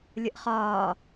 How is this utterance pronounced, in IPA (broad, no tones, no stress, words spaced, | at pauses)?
lʲəʔχɒː